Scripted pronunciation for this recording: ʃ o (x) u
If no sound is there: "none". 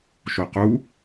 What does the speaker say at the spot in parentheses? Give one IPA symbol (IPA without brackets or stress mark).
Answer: q